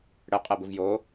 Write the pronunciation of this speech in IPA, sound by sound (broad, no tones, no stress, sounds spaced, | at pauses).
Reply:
ɽ ɛ qʼ ɛ b ɯ v j oː